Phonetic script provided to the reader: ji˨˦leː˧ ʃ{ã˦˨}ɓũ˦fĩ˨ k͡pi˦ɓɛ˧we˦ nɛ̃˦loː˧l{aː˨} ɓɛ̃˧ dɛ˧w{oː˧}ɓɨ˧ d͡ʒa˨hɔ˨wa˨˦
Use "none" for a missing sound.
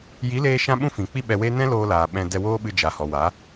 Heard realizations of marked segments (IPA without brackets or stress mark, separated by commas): ã˦, aː˨, oː˦